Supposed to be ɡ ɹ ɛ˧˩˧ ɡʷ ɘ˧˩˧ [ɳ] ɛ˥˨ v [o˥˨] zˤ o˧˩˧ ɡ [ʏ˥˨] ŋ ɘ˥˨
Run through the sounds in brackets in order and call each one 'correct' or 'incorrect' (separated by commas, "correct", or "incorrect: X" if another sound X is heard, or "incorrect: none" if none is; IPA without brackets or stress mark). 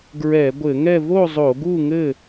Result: incorrect: ŋ, correct, incorrect: u˥˨